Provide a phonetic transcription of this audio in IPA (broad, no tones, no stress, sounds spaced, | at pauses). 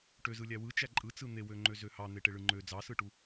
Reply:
ʈ ø z ɯ lʲ æ w ɯ t͡ʃ æ ǃʼ ɯ t͡s ɯ n̪ e w ø ŋ͡ǃ ø z ø h ɑ n̪ e ʈ e ɭ ɯ ŋ͡ǃ ø d͡z ɑ s ɯ ʈ u